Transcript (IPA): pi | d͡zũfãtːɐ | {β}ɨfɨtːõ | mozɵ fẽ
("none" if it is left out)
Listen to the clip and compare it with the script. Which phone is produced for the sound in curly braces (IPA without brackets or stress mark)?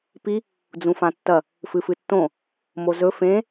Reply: f